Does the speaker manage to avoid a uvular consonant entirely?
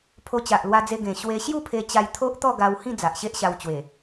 yes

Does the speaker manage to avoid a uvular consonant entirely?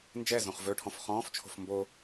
no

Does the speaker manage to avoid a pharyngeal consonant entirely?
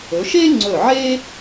no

